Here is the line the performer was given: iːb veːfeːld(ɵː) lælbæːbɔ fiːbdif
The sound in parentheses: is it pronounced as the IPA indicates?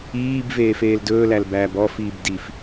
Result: yes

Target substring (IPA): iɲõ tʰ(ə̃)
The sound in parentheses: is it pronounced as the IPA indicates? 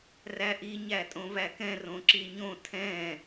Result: no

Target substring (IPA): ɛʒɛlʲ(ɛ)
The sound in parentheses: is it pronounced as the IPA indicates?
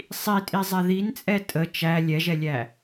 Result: no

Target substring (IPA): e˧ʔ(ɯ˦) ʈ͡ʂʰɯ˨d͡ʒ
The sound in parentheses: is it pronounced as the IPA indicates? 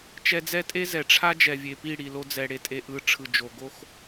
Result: no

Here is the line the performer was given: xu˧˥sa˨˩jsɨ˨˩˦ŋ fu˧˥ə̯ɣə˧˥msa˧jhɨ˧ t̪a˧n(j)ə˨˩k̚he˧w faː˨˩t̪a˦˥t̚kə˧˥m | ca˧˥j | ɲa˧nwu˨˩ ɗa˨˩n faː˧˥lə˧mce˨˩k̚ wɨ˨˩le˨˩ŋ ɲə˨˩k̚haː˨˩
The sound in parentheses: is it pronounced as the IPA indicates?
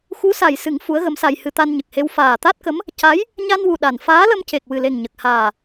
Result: no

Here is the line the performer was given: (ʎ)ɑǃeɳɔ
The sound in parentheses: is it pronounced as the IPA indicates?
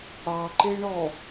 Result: no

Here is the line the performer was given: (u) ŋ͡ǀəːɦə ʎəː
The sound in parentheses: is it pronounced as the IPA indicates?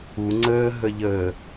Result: yes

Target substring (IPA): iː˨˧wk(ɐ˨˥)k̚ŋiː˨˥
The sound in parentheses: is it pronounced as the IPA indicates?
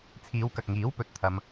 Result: no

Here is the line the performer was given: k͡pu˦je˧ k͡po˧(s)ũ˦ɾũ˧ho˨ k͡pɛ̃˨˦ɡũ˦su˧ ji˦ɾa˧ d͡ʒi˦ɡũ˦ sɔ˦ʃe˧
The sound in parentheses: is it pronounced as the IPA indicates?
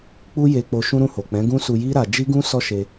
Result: no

